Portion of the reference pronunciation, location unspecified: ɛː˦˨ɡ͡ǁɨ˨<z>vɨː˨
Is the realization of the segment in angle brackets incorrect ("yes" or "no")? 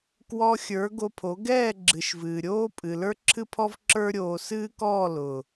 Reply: yes